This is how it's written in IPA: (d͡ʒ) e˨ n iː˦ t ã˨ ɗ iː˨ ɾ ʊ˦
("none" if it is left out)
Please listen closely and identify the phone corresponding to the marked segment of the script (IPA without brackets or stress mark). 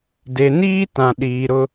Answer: d